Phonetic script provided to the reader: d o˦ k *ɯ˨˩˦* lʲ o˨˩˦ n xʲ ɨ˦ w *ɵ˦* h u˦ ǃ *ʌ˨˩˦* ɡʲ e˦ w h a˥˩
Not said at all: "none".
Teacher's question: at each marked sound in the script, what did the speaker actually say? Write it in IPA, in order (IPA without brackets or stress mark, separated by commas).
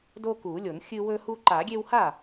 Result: u˨˩˦, ɵ˦, a˨˩˦